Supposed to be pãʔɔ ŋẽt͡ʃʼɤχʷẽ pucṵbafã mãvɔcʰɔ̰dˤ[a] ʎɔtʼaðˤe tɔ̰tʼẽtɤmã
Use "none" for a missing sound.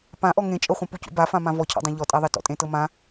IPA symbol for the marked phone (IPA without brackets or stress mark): ã